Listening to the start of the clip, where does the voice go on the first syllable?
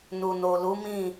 low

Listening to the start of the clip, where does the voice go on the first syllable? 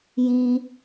high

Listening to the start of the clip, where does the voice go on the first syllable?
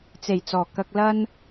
low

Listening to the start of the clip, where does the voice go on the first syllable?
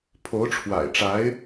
rising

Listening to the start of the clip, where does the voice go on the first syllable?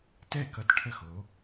falling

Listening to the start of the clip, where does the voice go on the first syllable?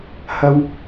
high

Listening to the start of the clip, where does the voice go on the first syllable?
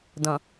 low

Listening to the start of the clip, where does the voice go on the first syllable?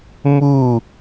falling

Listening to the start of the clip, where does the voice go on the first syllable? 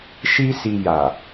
high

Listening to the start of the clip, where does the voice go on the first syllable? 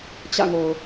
falling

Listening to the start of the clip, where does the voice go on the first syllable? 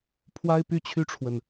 high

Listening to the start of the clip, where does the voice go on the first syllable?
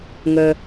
low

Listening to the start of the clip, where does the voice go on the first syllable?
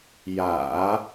low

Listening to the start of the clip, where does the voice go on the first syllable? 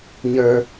low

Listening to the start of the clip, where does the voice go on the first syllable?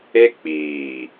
high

